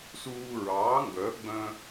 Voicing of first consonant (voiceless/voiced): voiceless